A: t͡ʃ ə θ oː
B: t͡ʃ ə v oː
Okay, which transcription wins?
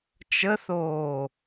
A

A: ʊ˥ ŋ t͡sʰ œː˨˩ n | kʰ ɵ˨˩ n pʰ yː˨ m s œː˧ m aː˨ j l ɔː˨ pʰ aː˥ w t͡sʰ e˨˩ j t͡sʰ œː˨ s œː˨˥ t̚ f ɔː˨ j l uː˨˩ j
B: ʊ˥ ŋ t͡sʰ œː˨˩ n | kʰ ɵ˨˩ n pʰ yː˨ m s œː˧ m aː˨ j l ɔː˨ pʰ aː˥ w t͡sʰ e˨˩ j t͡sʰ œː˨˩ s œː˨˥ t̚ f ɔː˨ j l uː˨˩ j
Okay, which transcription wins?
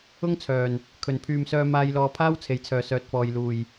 B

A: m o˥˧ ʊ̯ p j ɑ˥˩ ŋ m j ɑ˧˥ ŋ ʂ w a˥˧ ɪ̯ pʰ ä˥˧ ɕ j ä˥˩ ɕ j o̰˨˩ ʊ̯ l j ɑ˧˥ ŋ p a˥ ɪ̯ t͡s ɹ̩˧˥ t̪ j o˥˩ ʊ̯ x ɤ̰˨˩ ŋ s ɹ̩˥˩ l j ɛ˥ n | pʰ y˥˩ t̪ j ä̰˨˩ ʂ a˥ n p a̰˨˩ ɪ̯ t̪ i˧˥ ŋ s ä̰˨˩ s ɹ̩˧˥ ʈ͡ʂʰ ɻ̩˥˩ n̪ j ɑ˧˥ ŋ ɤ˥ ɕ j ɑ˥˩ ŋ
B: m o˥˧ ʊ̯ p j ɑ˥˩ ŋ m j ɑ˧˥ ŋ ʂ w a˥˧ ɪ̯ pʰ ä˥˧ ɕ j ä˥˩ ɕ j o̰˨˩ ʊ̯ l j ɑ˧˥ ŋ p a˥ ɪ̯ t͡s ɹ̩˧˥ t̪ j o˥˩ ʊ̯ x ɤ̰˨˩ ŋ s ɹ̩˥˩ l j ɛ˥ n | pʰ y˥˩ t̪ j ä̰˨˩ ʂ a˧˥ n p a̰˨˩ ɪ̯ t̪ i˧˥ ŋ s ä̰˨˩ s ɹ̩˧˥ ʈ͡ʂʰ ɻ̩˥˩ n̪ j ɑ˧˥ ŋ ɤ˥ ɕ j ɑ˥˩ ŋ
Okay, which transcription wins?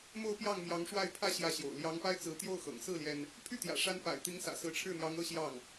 B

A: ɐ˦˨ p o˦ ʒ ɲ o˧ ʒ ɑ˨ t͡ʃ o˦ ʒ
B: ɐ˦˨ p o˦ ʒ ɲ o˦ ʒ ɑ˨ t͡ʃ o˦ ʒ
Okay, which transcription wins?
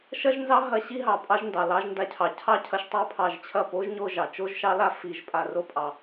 A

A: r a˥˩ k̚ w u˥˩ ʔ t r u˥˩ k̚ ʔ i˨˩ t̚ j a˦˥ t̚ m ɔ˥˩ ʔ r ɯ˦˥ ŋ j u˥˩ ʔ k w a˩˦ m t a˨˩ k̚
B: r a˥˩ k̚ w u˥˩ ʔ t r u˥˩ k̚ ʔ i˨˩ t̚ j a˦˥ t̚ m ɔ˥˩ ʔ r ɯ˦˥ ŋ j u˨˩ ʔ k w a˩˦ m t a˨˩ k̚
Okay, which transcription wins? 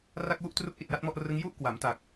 A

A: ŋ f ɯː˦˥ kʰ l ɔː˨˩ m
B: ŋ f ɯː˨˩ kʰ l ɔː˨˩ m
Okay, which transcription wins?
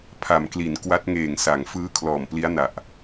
A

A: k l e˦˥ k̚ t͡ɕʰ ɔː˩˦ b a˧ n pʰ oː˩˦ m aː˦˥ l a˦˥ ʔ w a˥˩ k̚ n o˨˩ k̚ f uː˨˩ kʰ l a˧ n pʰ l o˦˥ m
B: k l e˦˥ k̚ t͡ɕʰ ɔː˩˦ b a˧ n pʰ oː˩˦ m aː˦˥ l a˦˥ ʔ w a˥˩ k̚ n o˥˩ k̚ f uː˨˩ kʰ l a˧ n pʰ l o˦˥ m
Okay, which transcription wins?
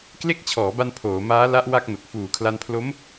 A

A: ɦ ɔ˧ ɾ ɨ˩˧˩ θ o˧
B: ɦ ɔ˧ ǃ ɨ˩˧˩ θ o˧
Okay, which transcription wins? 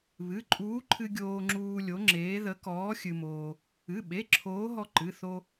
B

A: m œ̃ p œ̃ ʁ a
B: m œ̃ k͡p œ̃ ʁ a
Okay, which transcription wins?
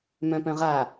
A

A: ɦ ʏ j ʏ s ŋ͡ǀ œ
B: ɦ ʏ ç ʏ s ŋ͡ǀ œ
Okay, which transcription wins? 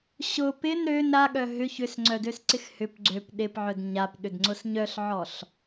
B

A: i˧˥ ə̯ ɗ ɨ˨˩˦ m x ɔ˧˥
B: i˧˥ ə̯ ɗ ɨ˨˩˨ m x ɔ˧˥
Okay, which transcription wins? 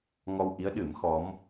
A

